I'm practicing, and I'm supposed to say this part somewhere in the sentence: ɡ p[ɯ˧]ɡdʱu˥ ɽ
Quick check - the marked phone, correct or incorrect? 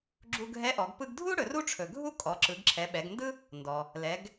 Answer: correct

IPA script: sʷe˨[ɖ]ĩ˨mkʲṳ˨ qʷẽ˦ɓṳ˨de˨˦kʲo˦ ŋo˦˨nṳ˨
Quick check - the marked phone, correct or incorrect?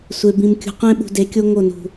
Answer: incorrect: b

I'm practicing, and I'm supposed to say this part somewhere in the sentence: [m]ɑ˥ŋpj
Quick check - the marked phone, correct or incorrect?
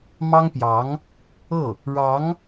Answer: correct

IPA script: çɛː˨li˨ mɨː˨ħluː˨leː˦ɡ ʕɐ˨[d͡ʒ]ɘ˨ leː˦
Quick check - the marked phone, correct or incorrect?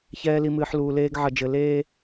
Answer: correct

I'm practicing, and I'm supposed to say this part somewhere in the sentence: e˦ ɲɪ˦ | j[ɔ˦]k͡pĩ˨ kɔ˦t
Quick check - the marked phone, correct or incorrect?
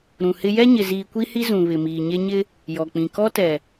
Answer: incorrect: ɔ˨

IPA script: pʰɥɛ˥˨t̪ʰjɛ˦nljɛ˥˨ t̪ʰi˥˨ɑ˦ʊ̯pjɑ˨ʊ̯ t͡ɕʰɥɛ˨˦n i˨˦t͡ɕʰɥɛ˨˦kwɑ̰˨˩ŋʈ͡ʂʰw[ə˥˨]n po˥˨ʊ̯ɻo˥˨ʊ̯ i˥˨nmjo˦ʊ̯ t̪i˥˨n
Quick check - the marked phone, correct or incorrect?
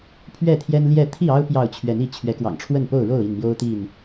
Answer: correct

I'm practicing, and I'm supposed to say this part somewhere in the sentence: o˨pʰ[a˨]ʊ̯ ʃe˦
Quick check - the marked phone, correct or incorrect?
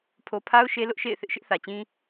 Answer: incorrect: a˦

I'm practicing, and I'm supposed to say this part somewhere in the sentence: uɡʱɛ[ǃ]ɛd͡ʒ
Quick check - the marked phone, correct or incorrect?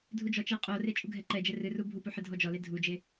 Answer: correct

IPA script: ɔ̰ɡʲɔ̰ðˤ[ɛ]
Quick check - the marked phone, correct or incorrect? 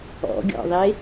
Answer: incorrect: e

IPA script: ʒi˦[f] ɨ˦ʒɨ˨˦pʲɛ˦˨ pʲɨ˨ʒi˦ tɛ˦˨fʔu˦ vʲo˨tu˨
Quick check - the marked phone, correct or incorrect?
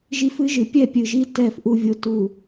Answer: correct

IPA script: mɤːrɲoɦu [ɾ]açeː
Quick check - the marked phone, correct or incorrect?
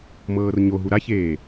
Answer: correct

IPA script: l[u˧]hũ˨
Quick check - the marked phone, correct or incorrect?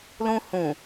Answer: incorrect: ũ˧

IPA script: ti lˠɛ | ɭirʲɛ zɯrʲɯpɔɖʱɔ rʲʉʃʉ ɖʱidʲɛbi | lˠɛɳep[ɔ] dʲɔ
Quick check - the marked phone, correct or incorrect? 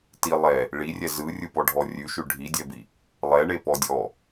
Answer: correct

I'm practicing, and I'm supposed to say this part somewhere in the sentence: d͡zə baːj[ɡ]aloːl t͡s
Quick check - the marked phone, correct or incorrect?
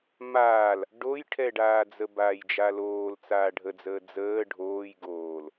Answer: incorrect: d͡ʒ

